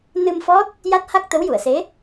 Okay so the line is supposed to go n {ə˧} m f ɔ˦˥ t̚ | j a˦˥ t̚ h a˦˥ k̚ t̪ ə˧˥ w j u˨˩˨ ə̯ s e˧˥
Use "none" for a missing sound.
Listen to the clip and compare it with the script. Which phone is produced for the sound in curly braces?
ɨ˧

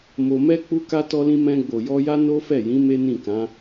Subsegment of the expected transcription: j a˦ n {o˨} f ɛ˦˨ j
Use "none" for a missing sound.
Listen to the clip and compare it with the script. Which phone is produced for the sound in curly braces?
o˦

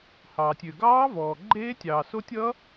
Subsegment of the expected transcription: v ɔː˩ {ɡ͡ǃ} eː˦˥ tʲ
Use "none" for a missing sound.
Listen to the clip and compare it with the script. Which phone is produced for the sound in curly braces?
ɡ͡ǃ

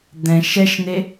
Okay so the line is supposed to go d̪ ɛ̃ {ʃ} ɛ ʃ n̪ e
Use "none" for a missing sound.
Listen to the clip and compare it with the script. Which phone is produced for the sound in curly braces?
ʃ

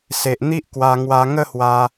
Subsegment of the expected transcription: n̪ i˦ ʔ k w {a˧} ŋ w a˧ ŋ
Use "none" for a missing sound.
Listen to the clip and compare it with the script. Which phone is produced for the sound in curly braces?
a˧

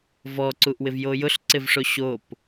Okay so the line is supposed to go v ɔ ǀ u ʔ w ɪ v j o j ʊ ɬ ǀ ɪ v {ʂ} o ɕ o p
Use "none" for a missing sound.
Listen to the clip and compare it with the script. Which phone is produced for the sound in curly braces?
ʂ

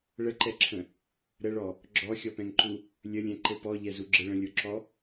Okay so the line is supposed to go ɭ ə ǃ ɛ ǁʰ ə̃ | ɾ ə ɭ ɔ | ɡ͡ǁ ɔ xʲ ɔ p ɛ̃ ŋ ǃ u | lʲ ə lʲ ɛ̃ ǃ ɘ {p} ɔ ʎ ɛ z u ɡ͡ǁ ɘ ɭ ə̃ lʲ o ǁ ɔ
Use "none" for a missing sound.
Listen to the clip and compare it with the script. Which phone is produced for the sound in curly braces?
p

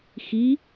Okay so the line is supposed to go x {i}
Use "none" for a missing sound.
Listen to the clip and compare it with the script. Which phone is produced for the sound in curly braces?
i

